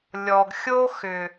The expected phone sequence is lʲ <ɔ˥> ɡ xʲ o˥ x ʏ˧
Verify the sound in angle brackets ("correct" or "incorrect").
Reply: correct